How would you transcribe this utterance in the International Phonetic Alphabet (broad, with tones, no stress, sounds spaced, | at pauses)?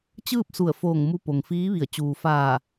t͡ɕ ɯː˥˨ p̚ s u˧˩ ə̯ f oː˧˩ ŋ m u˧ p o˩ ŋ f iː˧˥ ʋ i˧˩ ə̯ t͡ɕ uː˩ f aː˧˩